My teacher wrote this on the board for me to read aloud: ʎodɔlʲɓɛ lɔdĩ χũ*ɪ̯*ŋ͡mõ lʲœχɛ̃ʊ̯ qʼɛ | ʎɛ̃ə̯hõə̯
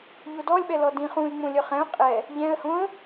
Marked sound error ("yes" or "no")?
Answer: no